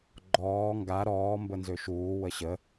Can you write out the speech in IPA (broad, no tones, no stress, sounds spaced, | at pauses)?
ɡ͡ǃ ɔː ŋ ɡ a ɾ ɔː m b ə n z ø ʃ uː w ə ɕ ə